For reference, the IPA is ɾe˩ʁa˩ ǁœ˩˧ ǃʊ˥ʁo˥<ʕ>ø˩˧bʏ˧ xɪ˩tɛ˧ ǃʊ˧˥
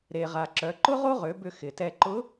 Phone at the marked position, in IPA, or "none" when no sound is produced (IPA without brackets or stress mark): ʁ